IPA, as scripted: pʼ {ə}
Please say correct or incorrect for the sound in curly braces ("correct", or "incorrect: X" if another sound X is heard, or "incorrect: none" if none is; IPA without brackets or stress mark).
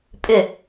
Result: incorrect: ʏ